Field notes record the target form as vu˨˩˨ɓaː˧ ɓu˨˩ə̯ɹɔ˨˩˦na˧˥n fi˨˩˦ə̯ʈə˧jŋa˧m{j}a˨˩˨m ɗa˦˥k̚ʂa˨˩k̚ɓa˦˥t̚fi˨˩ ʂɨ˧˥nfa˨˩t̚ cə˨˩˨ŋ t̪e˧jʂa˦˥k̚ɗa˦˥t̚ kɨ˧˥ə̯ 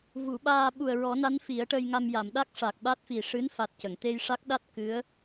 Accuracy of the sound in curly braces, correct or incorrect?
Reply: correct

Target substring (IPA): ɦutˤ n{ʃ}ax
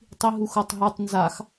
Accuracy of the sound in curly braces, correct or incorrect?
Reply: incorrect: z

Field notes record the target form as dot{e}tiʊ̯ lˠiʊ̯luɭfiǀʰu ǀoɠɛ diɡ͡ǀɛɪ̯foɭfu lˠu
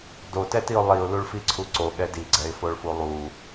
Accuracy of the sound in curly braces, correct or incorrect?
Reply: incorrect: ɛ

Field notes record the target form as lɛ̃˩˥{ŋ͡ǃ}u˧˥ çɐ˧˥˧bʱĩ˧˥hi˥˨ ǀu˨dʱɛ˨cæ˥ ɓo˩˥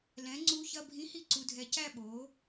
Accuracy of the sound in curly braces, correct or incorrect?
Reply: incorrect: ŋ͡ǀ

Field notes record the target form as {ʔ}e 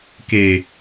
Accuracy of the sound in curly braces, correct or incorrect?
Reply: incorrect: k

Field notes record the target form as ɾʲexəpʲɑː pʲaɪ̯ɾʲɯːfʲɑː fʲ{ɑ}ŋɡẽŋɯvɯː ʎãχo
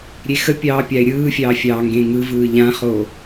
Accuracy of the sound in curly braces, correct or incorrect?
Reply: incorrect: ɑː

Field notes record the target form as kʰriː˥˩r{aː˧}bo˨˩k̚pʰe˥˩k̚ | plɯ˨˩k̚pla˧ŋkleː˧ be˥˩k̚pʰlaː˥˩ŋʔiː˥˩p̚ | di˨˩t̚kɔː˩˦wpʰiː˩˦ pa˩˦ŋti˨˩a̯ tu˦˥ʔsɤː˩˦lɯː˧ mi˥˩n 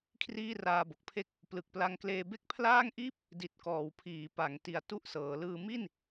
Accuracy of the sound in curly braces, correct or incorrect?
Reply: correct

